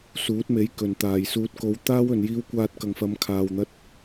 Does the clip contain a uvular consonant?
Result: no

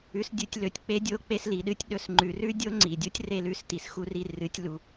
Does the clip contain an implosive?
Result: yes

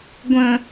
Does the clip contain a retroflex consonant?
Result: no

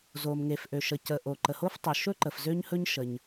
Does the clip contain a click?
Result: yes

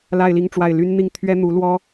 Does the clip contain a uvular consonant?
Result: no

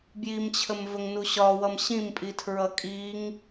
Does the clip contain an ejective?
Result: yes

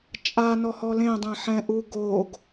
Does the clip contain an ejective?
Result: yes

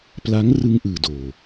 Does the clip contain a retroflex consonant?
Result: no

